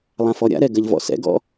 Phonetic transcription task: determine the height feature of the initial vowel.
low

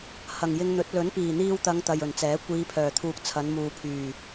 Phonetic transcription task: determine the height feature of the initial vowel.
low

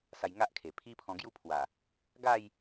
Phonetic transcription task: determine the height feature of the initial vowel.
low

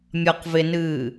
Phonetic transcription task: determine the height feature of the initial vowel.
low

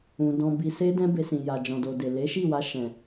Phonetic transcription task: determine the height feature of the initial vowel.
high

